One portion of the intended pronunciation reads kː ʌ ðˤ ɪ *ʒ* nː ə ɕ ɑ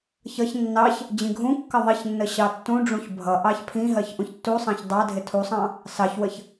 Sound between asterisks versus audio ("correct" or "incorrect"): incorrect